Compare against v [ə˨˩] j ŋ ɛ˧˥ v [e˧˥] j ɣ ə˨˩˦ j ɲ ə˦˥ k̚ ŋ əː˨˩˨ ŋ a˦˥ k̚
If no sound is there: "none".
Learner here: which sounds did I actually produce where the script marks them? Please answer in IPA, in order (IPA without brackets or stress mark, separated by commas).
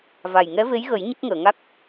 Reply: a˨˩, e˧˥